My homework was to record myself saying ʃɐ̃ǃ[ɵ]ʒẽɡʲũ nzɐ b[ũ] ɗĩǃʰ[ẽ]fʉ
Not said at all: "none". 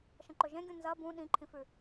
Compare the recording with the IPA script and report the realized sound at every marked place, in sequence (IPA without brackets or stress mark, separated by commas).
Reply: ɵ, ũ, ĩ